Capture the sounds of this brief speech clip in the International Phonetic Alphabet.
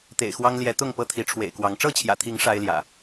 t̪ ḛ˨˩ ɪ̯ x w ɑ˦ ŋ l j ɛ˨˦ t̪ ʊ˥˨ ŋ p ɤ˦ t̪ʰ i˨˦ ʈ͡ʂʰ w ḛ˨˩ ɪ̯ k w ɑ˨˦ ŋ ʈ͡ʂ ɤ˥˨ t͡ɕʰ j ä̰˨˩ t̪ʰ i˨˦ ŋ ʂ a˦ ɪ̯ l j ä̰˨˩

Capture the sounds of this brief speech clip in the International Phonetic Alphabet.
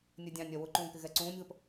nʲ ɛ dʲ ɑ̃ nʲ ɜ w ʊ ǃ ũː k ɪ ɣ ɛ ǀ ũː nʲ ð ə p

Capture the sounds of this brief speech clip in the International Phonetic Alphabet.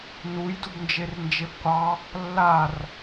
n u j d u b n d͡ʒ e r n d͡ʒ e b qʷ ɑ | lː a r

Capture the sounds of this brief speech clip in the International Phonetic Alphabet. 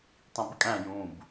tˤ ĩ b kʼ æ̃ j ũ b

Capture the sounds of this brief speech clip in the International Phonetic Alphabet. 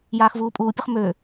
j aː x v uː pʼ uː pʲ ʊ χ m ø

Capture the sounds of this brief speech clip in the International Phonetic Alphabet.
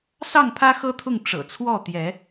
s ɑ˥˨ ŋ pʰ ä˦ x ɤ˦ t̪ʰ ʊ˥˨ ŋ ʈ͡ʂ ɤ̰˨˩ t͡sʰ w ɔ˥˨ t̪ j ɛ˨˦

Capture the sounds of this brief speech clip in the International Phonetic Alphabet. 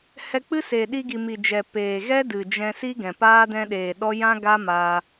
h ɛ˧ k͡p ɨ˦ s eː˨ ɗ i˧ ɡ i˨ m i˨ d͡ʒ ɛ˨ p eː˨ ɣ ɛ˦ d ɨ˨ d͡ʒ ɛ̃˧ s i˦ ɡ ɛ̃˨ p aː˦ d ɛ̃˧ ɗ eː˨ ɗ ɔ˦ j ã˦ ɡ a˦ m aː˧

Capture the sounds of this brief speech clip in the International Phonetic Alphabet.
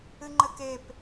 ɨ ŋ͡ǃ ɘ k e p

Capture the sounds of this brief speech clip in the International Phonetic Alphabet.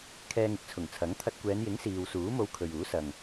kʰ ɛː˧ ŋ ɪ˨ k̚ t͡sʰ ʊ˨˩ ŋ t͡sʰ ɐ˨˥ ŋ t̪ʰ ɐ˧ t̚ kʷ ɛː˨˧ n j ɪ˨˥ ŋ s iː˨ w s uː˨˥ m o˧ w kʰ ɵ˨ ɥ uː˨˥ s ɐ˨ ŋ

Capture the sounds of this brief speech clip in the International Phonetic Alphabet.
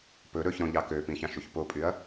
p ɵ ɾ ɵ ç ɾ õ ʎ ɑ k ø p ĩ ç ɑ̃ ʃ u ç p o pʼ y ɐ̯

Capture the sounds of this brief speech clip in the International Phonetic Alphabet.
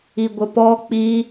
i ɡʷ ə p ɔ k͡p i

